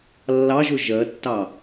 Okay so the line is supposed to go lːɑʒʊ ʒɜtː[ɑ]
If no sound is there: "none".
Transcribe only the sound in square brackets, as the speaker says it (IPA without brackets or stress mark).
ɑ